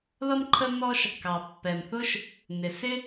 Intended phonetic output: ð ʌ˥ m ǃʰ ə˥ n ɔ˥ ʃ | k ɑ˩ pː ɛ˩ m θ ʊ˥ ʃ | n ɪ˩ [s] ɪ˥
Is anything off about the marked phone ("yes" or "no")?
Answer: no